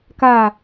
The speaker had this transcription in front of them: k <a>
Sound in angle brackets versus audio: correct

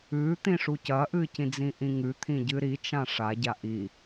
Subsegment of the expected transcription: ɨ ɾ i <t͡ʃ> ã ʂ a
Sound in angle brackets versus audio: correct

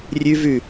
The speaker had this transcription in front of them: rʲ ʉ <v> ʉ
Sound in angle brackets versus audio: correct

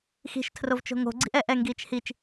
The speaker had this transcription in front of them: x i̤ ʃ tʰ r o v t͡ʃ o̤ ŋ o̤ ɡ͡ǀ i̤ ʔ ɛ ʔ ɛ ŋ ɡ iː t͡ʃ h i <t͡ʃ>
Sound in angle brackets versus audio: correct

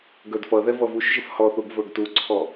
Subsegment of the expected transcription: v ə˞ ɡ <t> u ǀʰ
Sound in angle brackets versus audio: correct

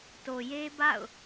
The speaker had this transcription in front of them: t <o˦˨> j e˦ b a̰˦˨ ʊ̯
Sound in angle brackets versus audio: incorrect: o˨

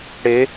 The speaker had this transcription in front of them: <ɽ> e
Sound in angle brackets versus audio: correct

